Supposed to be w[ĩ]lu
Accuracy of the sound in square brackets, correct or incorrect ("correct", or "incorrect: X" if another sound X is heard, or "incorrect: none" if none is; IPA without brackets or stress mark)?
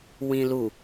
correct